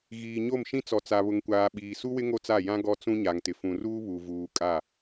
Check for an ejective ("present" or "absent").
present